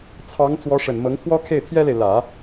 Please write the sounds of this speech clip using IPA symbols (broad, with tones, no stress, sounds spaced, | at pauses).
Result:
t͡sʰ ɑ˧˥ ŋ t͡s w ɔ˧˥ ʂ ə˨˩ n m ɤ˧˥ ŋ t̪ʰ w ɔ˥ kʰ e˥˩ ɪ̯ t̪ʰ j ɛ˥ l e˨ ɪ̯ l ä˨˩˦